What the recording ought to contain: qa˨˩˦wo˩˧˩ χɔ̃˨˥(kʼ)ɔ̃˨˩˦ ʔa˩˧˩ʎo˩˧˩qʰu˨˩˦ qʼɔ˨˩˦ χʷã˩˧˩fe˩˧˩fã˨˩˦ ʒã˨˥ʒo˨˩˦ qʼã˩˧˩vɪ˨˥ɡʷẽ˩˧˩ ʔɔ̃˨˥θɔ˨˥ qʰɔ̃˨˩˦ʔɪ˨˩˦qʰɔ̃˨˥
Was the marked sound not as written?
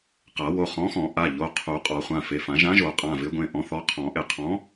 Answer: yes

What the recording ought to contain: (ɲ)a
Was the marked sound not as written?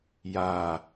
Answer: yes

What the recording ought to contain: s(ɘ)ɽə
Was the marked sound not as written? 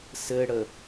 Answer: no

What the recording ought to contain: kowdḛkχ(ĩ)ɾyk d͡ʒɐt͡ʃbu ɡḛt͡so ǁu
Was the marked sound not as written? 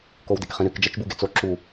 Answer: no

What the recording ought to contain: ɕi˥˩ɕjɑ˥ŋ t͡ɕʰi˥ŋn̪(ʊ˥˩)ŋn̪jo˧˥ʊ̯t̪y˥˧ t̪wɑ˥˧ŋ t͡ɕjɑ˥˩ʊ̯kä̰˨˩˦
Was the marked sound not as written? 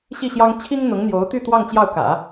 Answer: yes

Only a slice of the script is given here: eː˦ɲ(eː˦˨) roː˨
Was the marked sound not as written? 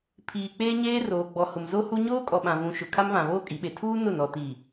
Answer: yes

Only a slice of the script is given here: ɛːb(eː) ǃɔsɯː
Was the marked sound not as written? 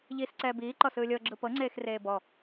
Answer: yes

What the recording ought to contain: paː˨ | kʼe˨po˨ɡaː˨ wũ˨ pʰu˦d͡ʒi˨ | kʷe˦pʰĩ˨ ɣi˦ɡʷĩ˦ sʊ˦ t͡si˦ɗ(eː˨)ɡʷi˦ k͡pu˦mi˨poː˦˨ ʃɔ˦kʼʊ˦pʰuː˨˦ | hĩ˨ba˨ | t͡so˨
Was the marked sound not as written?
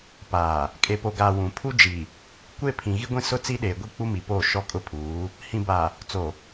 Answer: no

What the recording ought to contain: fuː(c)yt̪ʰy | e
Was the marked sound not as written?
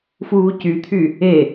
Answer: no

